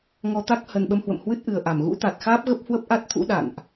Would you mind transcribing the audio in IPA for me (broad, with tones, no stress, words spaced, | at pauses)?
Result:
ŋɔ˧t̪a˦˥k̚ hə˨˩nɓə˧mhwə̰˧˨m hwɨ˦˥t̚ʔɨ˨˩ə̯ʔa˧˩m ɣṵ˧˥t̪a˨˩t̚xaː˦˥p̚ ɣə˦˥p̚hwə˦˥p̚ʔa˦˥t̚ t̪ʰṵ˧˥ ɗa̰˧˨nʔ